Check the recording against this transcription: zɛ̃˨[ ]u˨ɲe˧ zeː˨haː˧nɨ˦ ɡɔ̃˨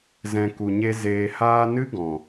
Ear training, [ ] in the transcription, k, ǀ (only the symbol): k